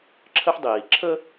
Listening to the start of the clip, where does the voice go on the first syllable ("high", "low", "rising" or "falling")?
high